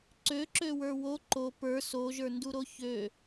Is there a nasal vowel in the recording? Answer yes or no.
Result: no